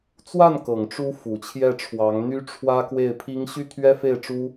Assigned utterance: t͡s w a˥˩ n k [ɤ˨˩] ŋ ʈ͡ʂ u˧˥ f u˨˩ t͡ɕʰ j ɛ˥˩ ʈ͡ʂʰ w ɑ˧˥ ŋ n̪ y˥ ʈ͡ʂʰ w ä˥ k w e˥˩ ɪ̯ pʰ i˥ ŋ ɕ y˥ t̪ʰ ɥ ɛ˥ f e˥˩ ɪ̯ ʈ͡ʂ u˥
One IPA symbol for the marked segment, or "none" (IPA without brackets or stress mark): ɤ˨˩